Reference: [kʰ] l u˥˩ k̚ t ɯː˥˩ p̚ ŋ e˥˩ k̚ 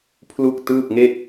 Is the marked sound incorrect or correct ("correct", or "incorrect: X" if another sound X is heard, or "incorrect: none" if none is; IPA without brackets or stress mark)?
incorrect: pʰ